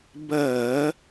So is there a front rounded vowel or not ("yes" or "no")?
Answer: no